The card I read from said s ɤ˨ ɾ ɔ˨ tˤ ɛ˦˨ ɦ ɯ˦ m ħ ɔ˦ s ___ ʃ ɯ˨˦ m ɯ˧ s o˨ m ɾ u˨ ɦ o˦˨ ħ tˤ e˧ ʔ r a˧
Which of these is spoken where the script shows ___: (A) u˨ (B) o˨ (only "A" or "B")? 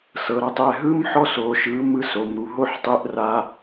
B